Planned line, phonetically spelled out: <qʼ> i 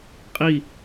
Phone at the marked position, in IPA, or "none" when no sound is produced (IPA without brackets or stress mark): qʼ